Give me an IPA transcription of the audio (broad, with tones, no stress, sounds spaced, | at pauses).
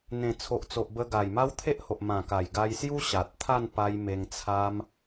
n̪ ẽ˨˩ t͡sʰ o˨ ʔ t͡s o˨ ʔ b ə˧ ɡ a˨˩ j m a˦ w t̪ʰ e˦ ʔ h o˨ ʔ m ã˨˩ k a˨˩ j ɡ a˧ j s j u˦ ɕ a˨ t̚ t̪ʰ a˥˧ n p a˧ j m e˧ ŋ t͡sʰ a˦ m